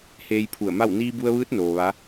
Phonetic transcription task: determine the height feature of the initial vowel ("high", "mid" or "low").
mid